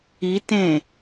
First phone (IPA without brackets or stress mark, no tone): i